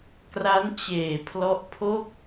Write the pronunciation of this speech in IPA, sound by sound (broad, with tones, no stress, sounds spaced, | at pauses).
k r a˦˥ n t͡ɕ eː˨˩ pʰ l ɔ˦˥ ʔ pʰ o˥˩ k̚